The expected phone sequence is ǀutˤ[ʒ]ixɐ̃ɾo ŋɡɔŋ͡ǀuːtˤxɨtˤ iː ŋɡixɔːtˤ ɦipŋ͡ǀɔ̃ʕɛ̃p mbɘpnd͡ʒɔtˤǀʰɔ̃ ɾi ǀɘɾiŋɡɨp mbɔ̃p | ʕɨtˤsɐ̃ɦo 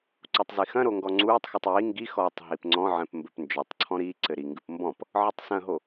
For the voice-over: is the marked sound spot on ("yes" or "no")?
no